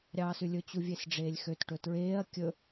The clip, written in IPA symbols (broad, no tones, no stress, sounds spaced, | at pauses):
ɾʲ ɑː s ʉ lʲ ɵ t͡ɕ u vʲ e s ɖ͡ʐ eː lʲ x ø t ʈ ɵ t ɹ eː ɐ̯ kʲ ɵ